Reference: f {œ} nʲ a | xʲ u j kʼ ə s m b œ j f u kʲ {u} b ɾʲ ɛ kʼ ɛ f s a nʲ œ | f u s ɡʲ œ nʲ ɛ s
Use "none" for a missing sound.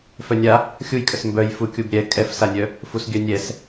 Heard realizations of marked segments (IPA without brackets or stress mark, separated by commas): œ, u